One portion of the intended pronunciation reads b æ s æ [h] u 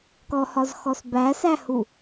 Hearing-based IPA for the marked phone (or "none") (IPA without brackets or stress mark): h